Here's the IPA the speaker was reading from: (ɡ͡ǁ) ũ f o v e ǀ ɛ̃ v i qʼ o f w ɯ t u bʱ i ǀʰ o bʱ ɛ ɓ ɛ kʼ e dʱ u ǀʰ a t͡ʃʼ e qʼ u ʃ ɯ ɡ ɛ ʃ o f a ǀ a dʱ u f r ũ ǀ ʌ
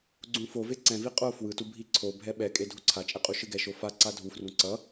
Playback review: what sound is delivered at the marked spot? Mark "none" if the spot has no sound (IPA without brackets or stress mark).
ɡ͡ǀ